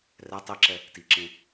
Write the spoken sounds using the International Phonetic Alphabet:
r ɛ tˤ i ǁ ɛ | t i ǁ ẽ

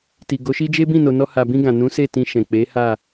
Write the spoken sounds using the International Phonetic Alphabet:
t i˨ ɡ o˨˦ ʃ i˦ d͡ʒ e˦ b ĩ˦˨ n o˨ n ɔ˧ h a˨ b ĩ˧ ɡ ã˨ n ũ˨˦ s e˦˨ t ĩ˧ ʃ ɛ̃˨ k͡p e˨˦ h a˦˨

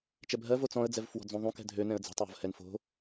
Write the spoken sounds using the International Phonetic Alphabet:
t͡ʃ ɛ bʱ ɜ v o t͡s ɔ̃ ə̯ d͡z ɛ v f w ɔ̤ d͡z ũ ðˤ ũ k ɛ̤ dʱ ø n ɛ̃ ə̯ d͡z ɛ̤ tˤ j ɔ̤ v h ɛ n f o̤

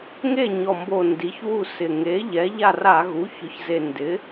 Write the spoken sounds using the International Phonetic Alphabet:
ŋ e˥˩ ɲ ɔ˨˩ m b o˨˩ n d i˩˥ ç w u˥˩ s ɪ˨˩ ŋ e˩˥ ʎ ɛ˩˥ ʎ a˥˩ r a˧˩˧ ɣ u˩˥ ç ʊ˩˥ ç z e˨˩ n d ɪ˩˥

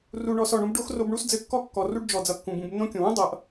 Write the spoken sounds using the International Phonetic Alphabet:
r u˨ ɳ ɔ˨ s ɔ˩ ɳ ũ˦ b ɖ o˥ x r o˦ b ɳ u˥ s d͡z ɘ˦ kː ɔ˥ kː ɔ˨ r u˦ ɖ d͡ʒ ɔ˨ d͡z ʌ˨ kː ũ˩ b ũ˨ b nː õ˥ kʲ õ˩ w ũ˥ dˤ ʌ˨ ʔ

